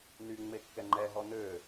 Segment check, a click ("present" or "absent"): present